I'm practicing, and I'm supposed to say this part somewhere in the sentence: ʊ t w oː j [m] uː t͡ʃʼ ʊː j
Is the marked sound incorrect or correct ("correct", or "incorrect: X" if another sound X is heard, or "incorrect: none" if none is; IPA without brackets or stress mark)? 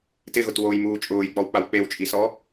correct